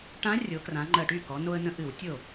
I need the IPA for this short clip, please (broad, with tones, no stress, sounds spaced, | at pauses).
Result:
ʈ ã˧˥ rʲ o˩˧ k r ã˩˧ ŋ͡ǃ ɜ˨˩ ʈ y˥˩ k ɔ˩˧ n o˧ ə̯ n ə̃˧ ʔ ɨ˧˩˧ w tʲ o˥˩